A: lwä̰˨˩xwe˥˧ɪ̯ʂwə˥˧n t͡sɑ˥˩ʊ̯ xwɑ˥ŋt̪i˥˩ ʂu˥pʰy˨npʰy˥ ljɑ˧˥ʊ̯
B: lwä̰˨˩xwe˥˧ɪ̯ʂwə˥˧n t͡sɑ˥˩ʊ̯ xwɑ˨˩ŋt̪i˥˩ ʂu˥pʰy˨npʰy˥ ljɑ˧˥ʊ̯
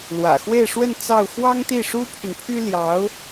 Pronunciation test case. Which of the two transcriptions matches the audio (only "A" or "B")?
A